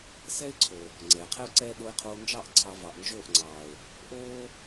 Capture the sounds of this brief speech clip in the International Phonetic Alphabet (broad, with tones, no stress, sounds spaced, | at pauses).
s ɛ˦ ɪ̯ ǀʰ o˨ | ŋ͡ǀ ɛː˨ qʰ ɛ˦ ʊ̯ ǀ ɛː˦ ɗ o˧ ɪ̯ qʰ oː˧ n d͡ʒ ɑ˦˨ ʔ ǀʰ ɑ˧ v ɑ˨ ʔ n d͡ʒ oː˦˨ ʔ ŋ͡ǀ ɑː˨ ʊ̯ | ʔ oː˦